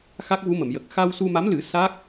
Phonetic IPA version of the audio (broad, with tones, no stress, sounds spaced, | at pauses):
x a˦˥ k̚ v u˧˥ m ə˨˩˨ m j ə˨˩ k̚ x a˧ w s u˧ m a˧˥ m l ɨ˨˩˦ s a˦˥ k̚